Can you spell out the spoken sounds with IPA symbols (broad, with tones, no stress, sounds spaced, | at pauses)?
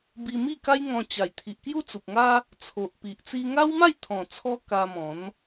b i˧ m i˥˧ k a˦ j ŋ ɔ̃˧ t͡ɕ a˨˩ j t̪ʰ i˨ ʔ k j u˦ t͡s u˨ p̚ ŋ a˦ | t͡sʰ o˨ ʔ p i˨ ʔ t͡s i˧ ŋ a˦ w m a˥˧ j t̪ʰ ɔ̃˨˩ t͡sʰ ɔ˦ k a˧ m ɔ̃˨˦ n